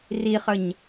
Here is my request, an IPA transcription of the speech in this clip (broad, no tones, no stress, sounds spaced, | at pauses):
r i χ ə ɲ